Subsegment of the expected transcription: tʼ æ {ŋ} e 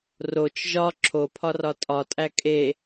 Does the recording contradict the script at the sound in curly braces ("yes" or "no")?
yes